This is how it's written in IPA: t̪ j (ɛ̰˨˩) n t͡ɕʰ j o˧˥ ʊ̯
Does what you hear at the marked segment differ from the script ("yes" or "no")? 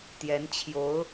yes